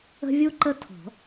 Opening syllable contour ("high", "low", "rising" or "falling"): high